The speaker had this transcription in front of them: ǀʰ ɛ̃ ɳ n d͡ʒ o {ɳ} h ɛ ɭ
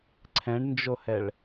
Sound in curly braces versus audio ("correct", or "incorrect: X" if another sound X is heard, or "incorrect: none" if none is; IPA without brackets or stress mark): incorrect: none